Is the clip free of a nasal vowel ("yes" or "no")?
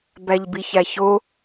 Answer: yes